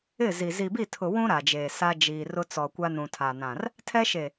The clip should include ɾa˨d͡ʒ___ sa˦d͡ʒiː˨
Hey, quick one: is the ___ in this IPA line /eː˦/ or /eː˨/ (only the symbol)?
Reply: eː˨